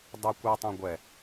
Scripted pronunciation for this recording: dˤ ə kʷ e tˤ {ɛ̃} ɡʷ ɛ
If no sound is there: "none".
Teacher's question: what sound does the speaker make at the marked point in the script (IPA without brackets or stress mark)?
ɛ̃